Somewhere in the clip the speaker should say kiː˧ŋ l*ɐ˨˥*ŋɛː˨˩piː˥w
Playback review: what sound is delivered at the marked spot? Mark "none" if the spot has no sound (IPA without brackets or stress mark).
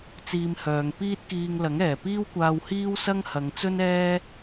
ɐ˨˥